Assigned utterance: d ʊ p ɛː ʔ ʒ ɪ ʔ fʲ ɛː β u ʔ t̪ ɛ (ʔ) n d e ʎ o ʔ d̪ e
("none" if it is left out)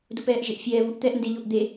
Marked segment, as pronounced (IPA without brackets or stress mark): ʔ